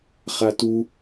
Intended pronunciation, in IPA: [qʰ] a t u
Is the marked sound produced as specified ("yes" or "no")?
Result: no